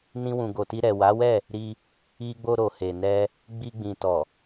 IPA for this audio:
n ĩ˧ w ũ˨ ɡ o˨ t i˧ ɾ ɛ˨ w a˨˦ w ɛ˦˨ | ɾ i˧ | i˧ ɡ͡b o˧ ɾ o˨ h e˨ n ɛ˧ | ɡ͡b i˧ ɡ͡b ĩ˨ t ɔ˨

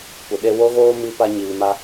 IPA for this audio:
kʷ ə˨ ɗ e˧ w o˦ ɣ oː˦ m i˧ p a˦ ɲ iː˧ m a˦

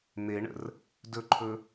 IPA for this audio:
n̪ e ɳ ə̰ r | d ɵ ǃʰ ɵ

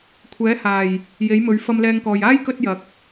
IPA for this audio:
kʷʰ ɛː˨˥ h aː˨˩ j | j e˨˥ j m ɵ˨˥ ɥ f ɐ˧ m l ɛː˧ ŋ k ɔː˨ j aː˥ j k ɵ˧ t̚ j ɐ˨ k̚

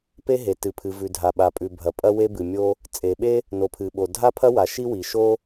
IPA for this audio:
p e˥ ɦ e˩ t ɨ˩ pʰ ɨ˩ v ʉ˩ dʱ a˩ ɓ a˩ pʼ ʉ˩ bʱ ɐ˩ pʼ ɐ˥ w e˥ b ɨ˩ mʲ o˥ | t͡sʼ e˩ ɓ e˥ | n o˩ pʰ ɨ˩ ɓ o˩ dʱ a˥ pʰ ɐ˥ w a˩ ʃ i˥ w i˩ ʃ o˥

